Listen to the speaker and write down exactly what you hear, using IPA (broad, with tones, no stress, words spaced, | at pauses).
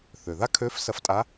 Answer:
θø˩ða˥kʰø˧˥f sɐ˧ftʼa˧˥